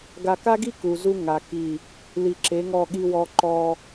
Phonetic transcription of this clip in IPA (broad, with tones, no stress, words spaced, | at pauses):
ɡa˨ka˦ɡi˦ ku˨zu˦ŋa˨ki˦˨ | li˨ǁe˨˦ŋɔ˦˨ ɠi˦wɔ˦ ǃɔ˦